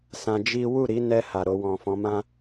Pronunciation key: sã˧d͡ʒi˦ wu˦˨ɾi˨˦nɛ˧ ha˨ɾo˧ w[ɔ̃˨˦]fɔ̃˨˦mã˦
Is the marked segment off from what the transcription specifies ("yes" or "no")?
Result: yes